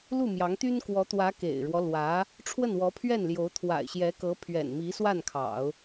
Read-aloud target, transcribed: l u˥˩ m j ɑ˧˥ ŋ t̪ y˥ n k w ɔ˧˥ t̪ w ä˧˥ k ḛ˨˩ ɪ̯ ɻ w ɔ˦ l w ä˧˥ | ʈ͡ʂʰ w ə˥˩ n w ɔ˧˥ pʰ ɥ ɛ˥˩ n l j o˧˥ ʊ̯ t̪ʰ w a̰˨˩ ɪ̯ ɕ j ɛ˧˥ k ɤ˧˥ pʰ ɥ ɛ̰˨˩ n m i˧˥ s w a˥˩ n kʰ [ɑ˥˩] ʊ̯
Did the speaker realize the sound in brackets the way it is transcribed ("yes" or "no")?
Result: no